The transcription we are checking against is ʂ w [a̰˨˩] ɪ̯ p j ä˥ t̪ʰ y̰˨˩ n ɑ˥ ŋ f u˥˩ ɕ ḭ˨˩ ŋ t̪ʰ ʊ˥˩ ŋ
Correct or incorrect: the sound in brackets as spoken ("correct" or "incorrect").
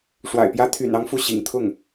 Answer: correct